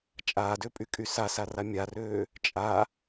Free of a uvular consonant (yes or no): yes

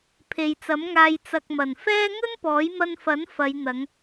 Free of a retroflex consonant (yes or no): yes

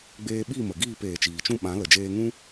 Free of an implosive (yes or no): no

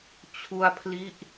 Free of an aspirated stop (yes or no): no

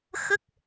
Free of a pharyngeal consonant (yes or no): yes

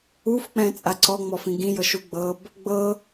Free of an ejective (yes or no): no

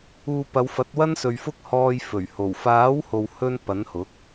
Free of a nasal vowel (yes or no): yes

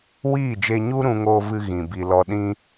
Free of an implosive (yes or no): no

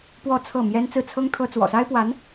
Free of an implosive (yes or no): yes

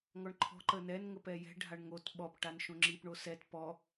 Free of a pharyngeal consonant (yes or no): yes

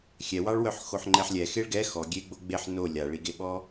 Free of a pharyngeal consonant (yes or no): no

